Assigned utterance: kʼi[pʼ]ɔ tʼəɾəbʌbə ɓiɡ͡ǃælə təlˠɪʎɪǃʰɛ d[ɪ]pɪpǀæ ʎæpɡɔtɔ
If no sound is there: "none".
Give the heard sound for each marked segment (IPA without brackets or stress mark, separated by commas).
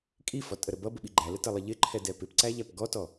f, ɛ